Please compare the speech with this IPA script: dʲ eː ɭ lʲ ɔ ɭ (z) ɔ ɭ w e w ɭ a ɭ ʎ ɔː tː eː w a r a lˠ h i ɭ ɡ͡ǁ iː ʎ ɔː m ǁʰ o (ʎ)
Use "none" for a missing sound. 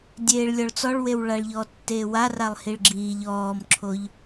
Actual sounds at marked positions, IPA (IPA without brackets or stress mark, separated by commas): t͡s, ʎ